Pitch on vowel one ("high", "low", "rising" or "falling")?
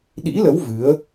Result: rising